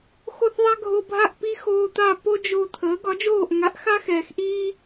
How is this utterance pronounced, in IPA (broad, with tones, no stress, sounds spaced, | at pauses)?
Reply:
x o˥˩ θ ðˤ a˥ ɡʱ o˧ bʱ a˥˩ ʔ p i˥ x oː˧ t̪ a˥˩ p o˥ d͡ʒ o˧ t̪ʰ əː˩˥ ɡ ɒ˩˥ d͡ʒ oː˥˩ ʔ ŋ a˩˥ ʔ x a˥ x ɛː˩ x ʔ iː˥